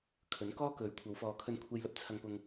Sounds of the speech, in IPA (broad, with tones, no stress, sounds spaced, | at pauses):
kʰ ɵ˨˥ n k ɔː˥ k ɵ˨˥ ɥ kʷʰ ɐ˨˧ w f ɔː˨ kʰ ɵ˧ n kʷʰ e˧ j l ɐ˥ p̚ t͡sʰ ɐ˧ ŋ p ʊ˧ ŋ